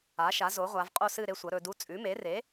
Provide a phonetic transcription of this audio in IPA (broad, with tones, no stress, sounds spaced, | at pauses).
a˩˥ ʃ a˩˥ z o˩˥ ʁʷ a˩˧ v qʼ o˥˨ s ɨ˥˨ ɾ e˦˥ sʷ ɐ˩˥ ɾ ɵ˩˧ d u˧˥˧ t͡sʼ ʉ˩˥ m e˩˥ r e˩˥